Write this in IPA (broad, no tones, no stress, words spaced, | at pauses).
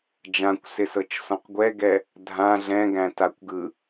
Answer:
d͡ʒãkʷsɪsɤt͡ʃsɔ̃q ɡʷɛɡɛ | dʱã ɮɛ̃ɡæ̃takʷɡɯ